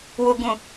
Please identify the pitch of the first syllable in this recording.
low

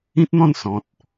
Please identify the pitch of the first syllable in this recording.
high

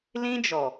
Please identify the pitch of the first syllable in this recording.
high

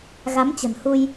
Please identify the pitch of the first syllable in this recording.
rising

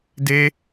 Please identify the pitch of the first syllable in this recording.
high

